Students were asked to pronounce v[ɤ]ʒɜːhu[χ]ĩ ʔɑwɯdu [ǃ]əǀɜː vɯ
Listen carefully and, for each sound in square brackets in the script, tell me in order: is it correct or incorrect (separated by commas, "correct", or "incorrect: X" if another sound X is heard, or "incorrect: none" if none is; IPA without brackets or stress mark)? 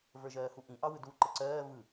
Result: incorrect: ə˞, incorrect: ʔ, correct